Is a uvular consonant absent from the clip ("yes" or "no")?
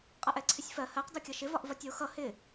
no